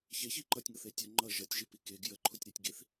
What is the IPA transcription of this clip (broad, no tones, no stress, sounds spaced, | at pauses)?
ç e ç i ǃ ʌ tʲ ŋ ɤ θ e tʲ ʌ ŋ͡ǃ ʌ ʒ ʌ tʲ ʒ i p i k e ɡ j ə ǃʰ u tʲ ɾ e tʲ ɡ i θ